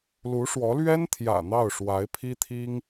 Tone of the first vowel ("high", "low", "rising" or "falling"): rising